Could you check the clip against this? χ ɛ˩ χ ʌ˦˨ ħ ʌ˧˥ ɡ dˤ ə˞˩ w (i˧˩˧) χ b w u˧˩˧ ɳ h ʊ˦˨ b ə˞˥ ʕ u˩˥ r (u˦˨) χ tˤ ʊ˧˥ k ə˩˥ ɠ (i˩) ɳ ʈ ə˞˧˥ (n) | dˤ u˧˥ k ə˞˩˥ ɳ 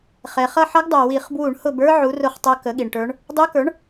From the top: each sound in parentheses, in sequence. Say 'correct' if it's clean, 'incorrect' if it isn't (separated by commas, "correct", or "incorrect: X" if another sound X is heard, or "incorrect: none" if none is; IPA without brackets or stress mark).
correct, incorrect: ʊ˦˨, correct, incorrect: ɳ